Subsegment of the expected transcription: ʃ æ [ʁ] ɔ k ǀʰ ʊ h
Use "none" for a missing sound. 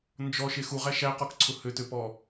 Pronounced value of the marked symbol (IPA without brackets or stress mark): q